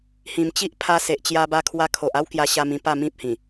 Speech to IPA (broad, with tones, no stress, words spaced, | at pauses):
hĩ˨˩mt͡ɕi˦ʔ pʰa˧se˨ʔt͡ɕja˧ ba˧kʰwa˧kʰo˨ʔ a˦wkja˧ɕa˧mĩ˧ pa˥˧mĩ˦p̚hĩ˨˩